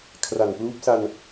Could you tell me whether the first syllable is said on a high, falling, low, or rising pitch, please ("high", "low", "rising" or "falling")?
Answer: low